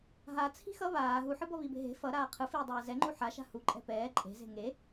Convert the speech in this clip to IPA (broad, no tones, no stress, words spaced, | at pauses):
ɦa t͡sʰi̤xʌ βaː ɦuħɯbʌ βibe̤ɦe̤ fʌɾaː qʰɯ fiːdˤɛːzɛŋ͡ǃu ħaʃa̤ hu ǃʼɛ̤pɛː ǃʼe̤ze̤ ŋe